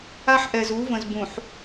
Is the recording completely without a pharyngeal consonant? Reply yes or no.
no